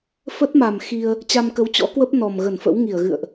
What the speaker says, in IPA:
f ə˦˥ t̚ m a˨˩ m x i˧ ə̯ | t͡ɕ a˧ m k ə˨˦ w t͡ɕ ɔ̰˧˥ k w ə˦˥ p̚ n ɔ˨˩ m ɣ ə˧˩ n f ə̰˧˥ w ŋ i˧˩ ə̯ ɣ ɨ̰˧˨ ə̯ ʔ

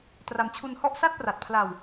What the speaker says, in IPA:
t r a˧ m t͡ɕʰ u˧ n h ɔ˥˩ ʔ s a˥˩ t̚ p r a˨˩ t̚ pʰ l a˧ w

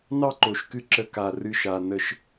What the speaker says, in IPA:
n ɑ˥ ǃ o˩ ʃ k ɨ˥ ǁ ə˧ k a˩ r ɨ˧ ʃ a˩ n ə˧ ʃ

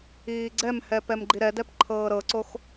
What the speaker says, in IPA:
iː ɡ͡ǀ ɛ m h ɛ p ɛ m ɡ͡ǃ i ɾ ɛ d ɛ p ǃʰ ɤː ɾ ɤ ǀ o x

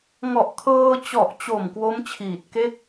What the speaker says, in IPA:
ŋ ɔ˨˩ ʔ kʰ ɤː˧ t͡ɕ ɔ˨˩ ʔ t͡ɕ o˨˩ m k w o˦˥ m t͡ɕʰ iː˨˩ t̚ k e˥˩ k̚

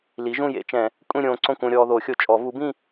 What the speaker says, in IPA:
l i˩˥ ʒ ũ˥˨ j ḛ˨˩˦ t͡ʃ ɛ̃˨˩˦ | kʷʼ ĩ˥˨ ɾʲ õː˧ ǀ õ˥˨ kʷ õ˧ ɾʲ ɔː˧ ð o˨˩˦ xʲ o˧ t͡ʃʼ ɔ˨˩˦ v u˩˥ b ĩ˥˨

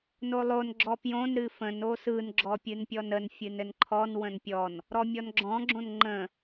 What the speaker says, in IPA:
n o lˠ o n ɡ͡ǁ ɔ p j õ n ɾ ɨ f ə̃ n o s ɯ n ɡ͡ǁ ɔ pʲ ɨ n pʲ ɔ n ə n fʲ ɨ n ɘ n ǃʰ ɔ n w ə̃ n pʲ ɔ n | ɾ ɔ mʲ ɔ n ɡ͡ǁ ɔ̃ ɡ͡ǁ õ n ŋ͡ǃ ə̃

